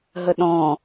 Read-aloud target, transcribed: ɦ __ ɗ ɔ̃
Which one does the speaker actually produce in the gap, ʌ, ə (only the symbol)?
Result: ə